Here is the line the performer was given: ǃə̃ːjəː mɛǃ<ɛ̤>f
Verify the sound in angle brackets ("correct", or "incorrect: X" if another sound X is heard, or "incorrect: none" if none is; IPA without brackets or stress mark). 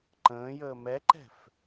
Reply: correct